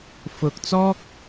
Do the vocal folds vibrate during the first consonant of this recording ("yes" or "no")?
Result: no